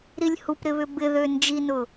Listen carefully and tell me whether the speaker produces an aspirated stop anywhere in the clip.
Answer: no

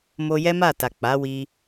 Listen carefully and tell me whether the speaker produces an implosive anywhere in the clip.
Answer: no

